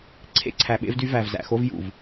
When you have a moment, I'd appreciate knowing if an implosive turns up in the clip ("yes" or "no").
yes